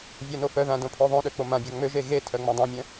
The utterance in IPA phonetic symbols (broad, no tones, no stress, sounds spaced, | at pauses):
vʲ a n o f œ ð ã d õ pʰ o ðˤ õ ɗ ø k͡p o m ã bʲ a ŋ͡m ø ʒ e ɣ e tʰ œ ŋ͡m õ dˤ œ̃ mʲ œ̃